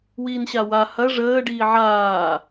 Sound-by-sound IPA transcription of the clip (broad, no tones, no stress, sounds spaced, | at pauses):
w iː n ɕ a w a h ɐ ʐ əː ɖ iː ʕ aː